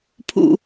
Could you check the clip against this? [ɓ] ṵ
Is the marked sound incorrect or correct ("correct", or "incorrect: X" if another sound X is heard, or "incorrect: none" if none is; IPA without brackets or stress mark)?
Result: incorrect: pʰ